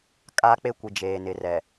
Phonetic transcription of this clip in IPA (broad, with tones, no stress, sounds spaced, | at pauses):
kʼ aː˦ k͡p e˦ kʷ i˨ d͡ʒ eː˨ n ɪ˨ r ɛ˨